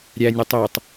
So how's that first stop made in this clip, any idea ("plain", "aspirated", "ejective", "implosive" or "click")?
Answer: plain